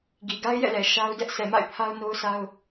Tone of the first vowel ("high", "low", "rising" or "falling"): low